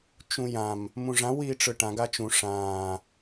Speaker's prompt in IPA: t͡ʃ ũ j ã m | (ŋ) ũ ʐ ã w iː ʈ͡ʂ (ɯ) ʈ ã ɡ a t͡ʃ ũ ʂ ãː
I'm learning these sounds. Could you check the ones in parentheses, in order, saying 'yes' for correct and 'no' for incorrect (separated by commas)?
no, yes